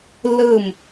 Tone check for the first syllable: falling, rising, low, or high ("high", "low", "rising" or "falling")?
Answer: falling